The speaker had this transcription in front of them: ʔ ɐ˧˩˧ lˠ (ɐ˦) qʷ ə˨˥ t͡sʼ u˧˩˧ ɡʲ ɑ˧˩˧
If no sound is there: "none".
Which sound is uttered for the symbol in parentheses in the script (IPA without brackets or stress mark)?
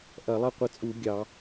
ɐ˦